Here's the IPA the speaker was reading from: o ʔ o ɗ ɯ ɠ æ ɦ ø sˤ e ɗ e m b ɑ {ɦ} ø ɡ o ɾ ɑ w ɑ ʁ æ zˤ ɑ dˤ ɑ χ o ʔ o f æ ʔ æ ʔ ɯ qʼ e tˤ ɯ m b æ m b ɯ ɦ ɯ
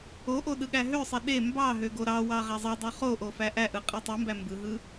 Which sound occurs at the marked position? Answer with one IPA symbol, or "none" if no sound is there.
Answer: ɦ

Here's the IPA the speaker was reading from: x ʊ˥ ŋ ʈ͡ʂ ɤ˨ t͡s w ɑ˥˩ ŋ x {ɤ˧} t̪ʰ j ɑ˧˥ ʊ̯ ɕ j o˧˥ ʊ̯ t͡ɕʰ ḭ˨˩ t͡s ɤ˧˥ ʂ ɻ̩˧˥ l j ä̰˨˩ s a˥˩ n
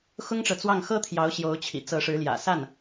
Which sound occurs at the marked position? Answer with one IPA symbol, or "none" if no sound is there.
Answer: ɤ˥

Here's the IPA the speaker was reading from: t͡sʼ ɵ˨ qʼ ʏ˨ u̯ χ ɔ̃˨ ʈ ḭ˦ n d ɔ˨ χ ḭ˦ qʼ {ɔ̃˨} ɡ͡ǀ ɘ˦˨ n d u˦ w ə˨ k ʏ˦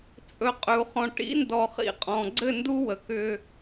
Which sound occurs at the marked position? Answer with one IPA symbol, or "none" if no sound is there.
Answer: ɔ̃˨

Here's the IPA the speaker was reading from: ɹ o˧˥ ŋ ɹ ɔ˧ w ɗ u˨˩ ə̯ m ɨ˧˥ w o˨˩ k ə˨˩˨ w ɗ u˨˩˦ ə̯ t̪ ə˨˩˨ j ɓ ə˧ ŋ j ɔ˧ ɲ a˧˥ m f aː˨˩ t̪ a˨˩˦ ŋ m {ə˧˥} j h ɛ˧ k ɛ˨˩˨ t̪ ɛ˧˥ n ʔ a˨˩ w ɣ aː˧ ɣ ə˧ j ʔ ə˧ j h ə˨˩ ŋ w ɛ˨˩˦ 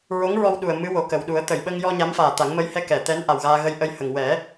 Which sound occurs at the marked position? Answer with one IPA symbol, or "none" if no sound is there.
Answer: ə˧˥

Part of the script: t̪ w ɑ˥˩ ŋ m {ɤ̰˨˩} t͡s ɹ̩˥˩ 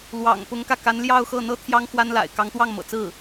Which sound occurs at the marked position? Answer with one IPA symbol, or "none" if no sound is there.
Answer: ɤ̰˨˩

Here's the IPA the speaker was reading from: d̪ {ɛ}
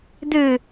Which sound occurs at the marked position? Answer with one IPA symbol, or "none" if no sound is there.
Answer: ɨ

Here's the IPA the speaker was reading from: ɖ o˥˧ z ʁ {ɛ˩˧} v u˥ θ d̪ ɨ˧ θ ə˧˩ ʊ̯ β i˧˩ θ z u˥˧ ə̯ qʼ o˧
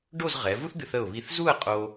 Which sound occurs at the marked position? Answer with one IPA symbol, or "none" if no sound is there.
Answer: ɛ˩˧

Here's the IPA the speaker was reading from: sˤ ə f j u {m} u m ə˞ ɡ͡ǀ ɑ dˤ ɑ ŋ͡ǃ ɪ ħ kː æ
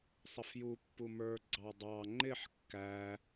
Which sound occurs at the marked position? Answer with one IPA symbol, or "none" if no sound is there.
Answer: pː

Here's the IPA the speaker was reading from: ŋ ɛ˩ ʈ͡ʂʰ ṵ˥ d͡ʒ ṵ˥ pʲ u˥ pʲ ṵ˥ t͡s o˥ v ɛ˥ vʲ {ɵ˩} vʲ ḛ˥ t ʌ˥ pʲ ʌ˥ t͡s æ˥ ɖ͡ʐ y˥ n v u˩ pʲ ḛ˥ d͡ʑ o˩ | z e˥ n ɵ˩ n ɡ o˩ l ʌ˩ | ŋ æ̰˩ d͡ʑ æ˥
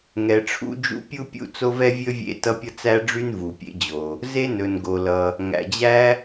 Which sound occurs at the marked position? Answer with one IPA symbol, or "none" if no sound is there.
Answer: ɵ˥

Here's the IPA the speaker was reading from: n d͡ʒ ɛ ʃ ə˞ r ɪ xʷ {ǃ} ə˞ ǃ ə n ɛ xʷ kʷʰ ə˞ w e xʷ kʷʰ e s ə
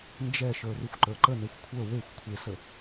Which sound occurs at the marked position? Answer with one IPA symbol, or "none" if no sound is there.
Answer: ǃ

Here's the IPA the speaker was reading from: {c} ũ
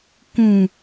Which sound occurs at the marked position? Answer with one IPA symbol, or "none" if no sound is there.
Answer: k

